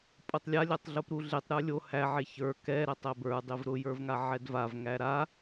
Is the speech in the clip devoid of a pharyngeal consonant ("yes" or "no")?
no